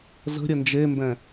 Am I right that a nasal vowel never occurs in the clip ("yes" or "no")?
no